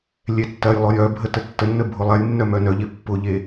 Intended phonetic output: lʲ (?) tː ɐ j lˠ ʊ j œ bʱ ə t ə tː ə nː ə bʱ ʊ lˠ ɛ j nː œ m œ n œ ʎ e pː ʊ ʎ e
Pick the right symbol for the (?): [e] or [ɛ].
ɛ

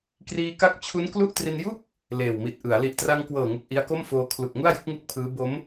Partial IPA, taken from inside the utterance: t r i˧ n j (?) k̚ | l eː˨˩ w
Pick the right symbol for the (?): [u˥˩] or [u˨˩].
u˥˩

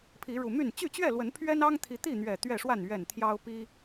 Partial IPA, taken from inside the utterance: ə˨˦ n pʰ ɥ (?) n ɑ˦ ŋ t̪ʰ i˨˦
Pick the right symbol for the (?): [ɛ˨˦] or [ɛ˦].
ɛ˦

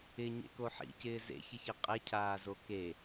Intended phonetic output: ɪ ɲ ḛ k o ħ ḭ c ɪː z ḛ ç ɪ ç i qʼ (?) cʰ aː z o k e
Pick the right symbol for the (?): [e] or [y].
e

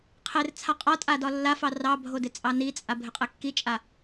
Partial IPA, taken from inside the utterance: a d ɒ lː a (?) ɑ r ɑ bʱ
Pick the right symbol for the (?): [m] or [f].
f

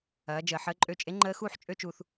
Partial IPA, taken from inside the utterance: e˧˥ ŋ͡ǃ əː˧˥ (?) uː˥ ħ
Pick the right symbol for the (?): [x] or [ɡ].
x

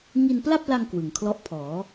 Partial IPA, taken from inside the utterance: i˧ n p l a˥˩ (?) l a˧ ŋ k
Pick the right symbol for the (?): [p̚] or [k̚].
p̚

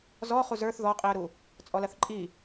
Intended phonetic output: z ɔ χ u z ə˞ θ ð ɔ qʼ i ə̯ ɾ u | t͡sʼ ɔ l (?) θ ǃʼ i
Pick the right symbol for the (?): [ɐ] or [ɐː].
ɐ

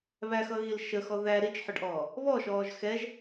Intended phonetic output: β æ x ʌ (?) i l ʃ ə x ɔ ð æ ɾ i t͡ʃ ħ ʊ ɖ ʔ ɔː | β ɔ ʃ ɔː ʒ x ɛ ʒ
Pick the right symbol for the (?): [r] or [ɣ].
ɣ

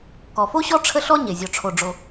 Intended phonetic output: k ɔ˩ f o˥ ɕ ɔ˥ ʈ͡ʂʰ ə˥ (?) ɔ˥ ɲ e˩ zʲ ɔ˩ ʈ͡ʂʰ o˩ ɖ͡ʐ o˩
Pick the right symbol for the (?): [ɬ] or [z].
ɬ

